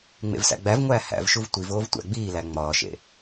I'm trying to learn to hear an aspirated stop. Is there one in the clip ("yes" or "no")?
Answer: no